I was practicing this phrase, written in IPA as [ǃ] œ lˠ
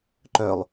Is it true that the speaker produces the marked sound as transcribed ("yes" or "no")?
yes